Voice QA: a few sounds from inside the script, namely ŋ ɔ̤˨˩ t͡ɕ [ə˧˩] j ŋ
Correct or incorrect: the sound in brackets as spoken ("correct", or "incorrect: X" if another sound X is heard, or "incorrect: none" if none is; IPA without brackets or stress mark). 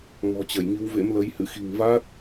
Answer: correct